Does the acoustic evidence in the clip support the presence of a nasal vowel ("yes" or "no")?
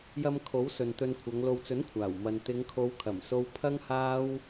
no